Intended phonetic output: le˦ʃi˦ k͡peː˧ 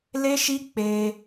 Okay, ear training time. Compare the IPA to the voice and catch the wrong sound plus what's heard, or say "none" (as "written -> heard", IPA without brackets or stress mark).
none